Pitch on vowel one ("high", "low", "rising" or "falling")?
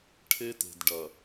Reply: high